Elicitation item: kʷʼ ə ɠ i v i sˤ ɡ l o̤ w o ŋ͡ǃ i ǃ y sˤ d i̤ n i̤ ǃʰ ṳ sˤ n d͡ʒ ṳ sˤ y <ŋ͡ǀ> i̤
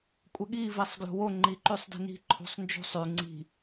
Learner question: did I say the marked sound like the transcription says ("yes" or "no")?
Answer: yes